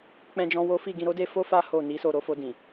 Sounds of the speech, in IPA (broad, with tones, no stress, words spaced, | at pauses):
k͡pɛ̃˧d͡ʒɔ̃˧ wo˦ fi˦˨ɡĩ˧ɾo˦de˦ fo˦fa˦ ho˦˨ni˨˦so˦˨ ɾo˧fo˧dĩ˨